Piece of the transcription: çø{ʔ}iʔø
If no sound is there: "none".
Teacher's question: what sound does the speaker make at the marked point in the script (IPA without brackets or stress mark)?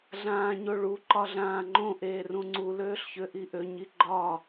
ʔ